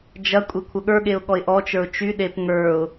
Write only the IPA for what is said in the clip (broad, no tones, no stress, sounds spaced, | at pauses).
d͡ʒ ɐ kʷʼ e kʷʰ ə ɠ ə˞ ɠ e ʊ̯ ɠ ɔ ɪ̯ ʔ ɔ t͡ʃ ə˞ ʊ̯ t͡ʃ y ɗ e p ŋ ə˞ ʊ̯